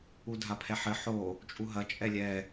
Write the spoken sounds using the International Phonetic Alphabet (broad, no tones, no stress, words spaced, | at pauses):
udʱapʰɛħɘ ħo | t͡ʃʼuɦɐ t͡ʃʼɛlʲɛ